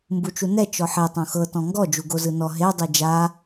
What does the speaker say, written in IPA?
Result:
mbut͡ʃunɛ t͡ʃɔħe tˤõxɤ tɔ̃ŋɡɔ d͡ʒuɡozɯnɔ ɦe dˤid͡ʒa

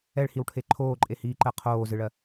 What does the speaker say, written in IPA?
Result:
ɛɭhiwʈʰe ǃʰoːǃʼehiːǃɜ qʰoːzɨɭɜ

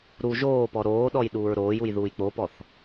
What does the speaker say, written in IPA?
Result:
ɾu ʒoːpɔ ɾoːɗɔj ɗuːɹɾoːjuj ðuːjk͡popɔθ

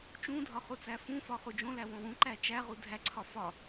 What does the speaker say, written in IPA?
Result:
t͡ʃũdʱɒ χut͡sæfũfɒ χud͡ʒõlæ wõwũǃæ t͡ʃæʁu dʱæǀʰɒ fɒ

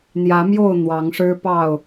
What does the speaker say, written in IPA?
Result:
n̪jä˨˦mjo˥˨ʊ̯ n̪wɑ˨˦ŋʂɻ̩˦ pɑ˥˨ʊ̯

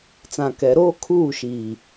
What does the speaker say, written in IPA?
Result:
t͡sã˨kɛ˨˦ɾoː˦kʰuː˦˨ ʃiː˨

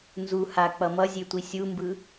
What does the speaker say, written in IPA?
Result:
nzu hak͡pʌ mʌzʲetʷi sʲumbɯ

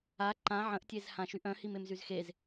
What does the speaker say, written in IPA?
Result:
a ǃã ʕə̃ʔtʲezhã ʃyʔœ̃himem zyzxez

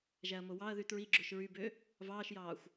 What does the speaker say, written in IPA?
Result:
ʒæɐ̯mowɑɐ̯ðy tɹi ɡ͡ǁøʃɹybø | vɑːʃjɑːxʷ

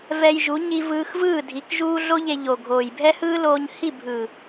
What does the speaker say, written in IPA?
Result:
vɛ˧jʒu˨˦ ɲi˧vɯː˧xvɯː˦˨dʱi˨˦k ʒuː˦ ɮo˦ʎe˧ ʎo˨ɡʱoː˨jbʱɛ˦hɯː˦ loː˧ɲhi˦˨bʱɯ˨

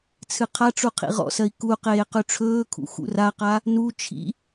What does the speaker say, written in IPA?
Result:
t͡sʰɨqʰaʈ͡ʂu qʰḭʁɔ̰sɜi̯ ku qeːqʉʈ͡ʂʰɵːkʰṵ xṵraqa | nu t͡ʃʰḭ

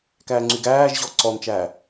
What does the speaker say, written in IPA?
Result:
kæːŋ͡ǀyɡæːʒʑɔ ǀɔnt͡ʃæː

